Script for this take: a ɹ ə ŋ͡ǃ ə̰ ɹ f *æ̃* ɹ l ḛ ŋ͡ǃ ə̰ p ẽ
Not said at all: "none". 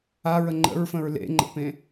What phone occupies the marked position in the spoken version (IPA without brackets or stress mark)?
ə̃